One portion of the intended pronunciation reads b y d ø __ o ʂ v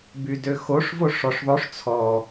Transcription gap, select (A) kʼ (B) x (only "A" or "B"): B